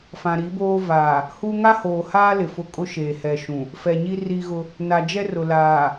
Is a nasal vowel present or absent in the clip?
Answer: present